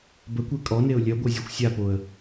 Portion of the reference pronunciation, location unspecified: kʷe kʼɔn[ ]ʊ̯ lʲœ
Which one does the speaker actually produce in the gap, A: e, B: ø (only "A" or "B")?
A